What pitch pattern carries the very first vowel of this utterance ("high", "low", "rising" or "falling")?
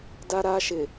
high